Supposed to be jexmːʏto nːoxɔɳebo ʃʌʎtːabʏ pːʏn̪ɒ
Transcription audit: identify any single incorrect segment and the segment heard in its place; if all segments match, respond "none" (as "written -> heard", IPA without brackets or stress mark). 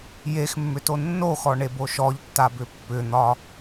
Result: ʌ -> ɔ